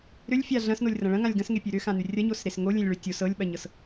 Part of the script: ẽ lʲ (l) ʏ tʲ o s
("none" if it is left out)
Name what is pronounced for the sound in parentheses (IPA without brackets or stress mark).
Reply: ɭ